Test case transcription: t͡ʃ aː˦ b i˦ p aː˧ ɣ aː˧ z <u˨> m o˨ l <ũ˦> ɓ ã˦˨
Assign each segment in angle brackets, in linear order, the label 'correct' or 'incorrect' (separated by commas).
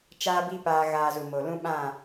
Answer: correct, correct